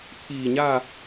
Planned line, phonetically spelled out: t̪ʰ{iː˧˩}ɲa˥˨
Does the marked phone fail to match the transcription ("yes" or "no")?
no